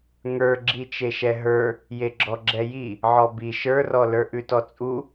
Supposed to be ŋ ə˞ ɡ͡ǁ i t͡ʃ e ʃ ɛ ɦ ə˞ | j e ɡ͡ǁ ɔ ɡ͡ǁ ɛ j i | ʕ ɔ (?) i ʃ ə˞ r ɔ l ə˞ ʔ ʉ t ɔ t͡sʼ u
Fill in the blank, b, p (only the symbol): b